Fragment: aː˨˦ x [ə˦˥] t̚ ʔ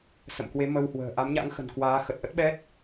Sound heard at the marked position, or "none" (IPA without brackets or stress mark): ə˨˩